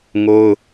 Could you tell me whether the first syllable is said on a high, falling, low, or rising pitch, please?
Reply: high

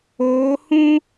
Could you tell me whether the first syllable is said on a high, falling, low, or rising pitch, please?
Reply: rising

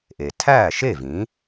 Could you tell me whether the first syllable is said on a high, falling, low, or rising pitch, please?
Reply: low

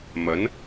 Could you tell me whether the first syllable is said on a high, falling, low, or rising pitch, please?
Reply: rising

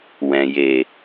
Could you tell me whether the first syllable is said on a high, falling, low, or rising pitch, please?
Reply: low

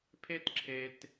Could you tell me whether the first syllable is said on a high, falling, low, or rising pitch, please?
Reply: high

